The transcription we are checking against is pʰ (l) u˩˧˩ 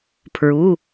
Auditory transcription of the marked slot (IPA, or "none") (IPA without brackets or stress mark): ɹ